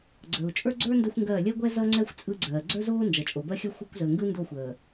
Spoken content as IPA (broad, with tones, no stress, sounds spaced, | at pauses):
ɡ͡ǀ əː˨ u̯ t͡ʃʼ ə˞˦ ɡ͡ǀ ə˞˦ n d ɜ˦ xʷ ŋ ɡ ɜː˦˨ lʲ ɜ˦ ɡʷ ɛ˦ z ʌ˦ ŋ͡ǀ ɛ˦ xʷ t͡sʼ ɯ˦ ɡ͡ǀ ɜː˨ ɡ͡ǀ ə˞˦ z oː˦ n d͡ʒ ʌ˨ t͡ʃʼ o˨ b ɜ˦ xʲ ʌ˦ xʷ ɯ˦ kʷ z əː˨ ŋ ɡ ɯ˦ n d o˦˨ xʷ əː˨